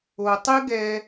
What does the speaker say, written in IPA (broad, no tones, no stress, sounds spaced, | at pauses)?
o tˤ ɨ ɡ ɛ